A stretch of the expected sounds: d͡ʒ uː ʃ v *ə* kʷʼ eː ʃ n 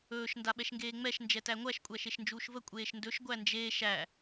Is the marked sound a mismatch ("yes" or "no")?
no